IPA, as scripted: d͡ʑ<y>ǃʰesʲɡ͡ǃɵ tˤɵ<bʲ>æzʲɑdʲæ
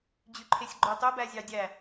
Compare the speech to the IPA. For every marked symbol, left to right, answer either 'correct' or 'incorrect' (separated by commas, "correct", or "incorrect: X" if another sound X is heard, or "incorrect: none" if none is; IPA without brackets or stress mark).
correct, incorrect: b